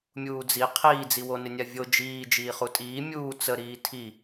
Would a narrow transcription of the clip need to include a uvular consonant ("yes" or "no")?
yes